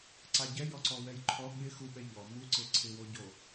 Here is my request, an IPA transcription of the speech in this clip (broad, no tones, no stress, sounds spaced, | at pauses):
ǀ a ɟ ɛ j ɔ ǀ ɔ w ɛ j ǃʰ ɔ ɠ ɪ x u ɓ ɛ ʎ ɔ m u ǀ e ǀʰ ɪ w o ɟ o